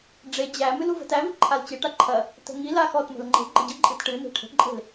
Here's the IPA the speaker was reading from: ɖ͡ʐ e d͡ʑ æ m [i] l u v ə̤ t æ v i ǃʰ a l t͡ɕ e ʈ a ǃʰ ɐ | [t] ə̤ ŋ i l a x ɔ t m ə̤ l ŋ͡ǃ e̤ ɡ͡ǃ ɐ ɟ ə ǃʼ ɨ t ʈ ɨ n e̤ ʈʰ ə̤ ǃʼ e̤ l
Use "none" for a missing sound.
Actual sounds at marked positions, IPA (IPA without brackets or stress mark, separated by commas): ɨ, t